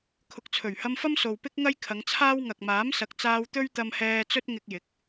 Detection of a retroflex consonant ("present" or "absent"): absent